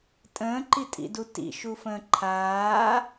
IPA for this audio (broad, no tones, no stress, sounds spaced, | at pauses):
tʼ ə̃ː ǃ i tʼ ḭ d u t ḭ ʃ u f ə̃ː ǃʰ aː